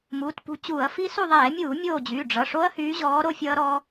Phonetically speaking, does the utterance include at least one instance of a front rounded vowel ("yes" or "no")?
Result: yes